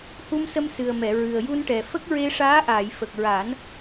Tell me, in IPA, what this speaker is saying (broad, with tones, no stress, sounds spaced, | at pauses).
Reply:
h u˧ m s ə˧ m s ɨ˨˩ ə̯ m ɛ˨˩˨ ɹ ɨ˨˩ ə̯ j u˧ n ʈ ɛ˨˩ f ə˦˥ k̚ ɹ e˧ ʂ aː˧˥ ʔ aː˨˩˨ j f ə˨˩ k̚ ɹ aː˨˩˦ n